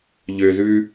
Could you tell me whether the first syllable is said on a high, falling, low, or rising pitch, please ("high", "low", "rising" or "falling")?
low